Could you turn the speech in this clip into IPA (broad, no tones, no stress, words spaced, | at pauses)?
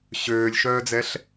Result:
ɕøːlʲʃœːd͡zɛɬ